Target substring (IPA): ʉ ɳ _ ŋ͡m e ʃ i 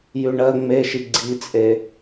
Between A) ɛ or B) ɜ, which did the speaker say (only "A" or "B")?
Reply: B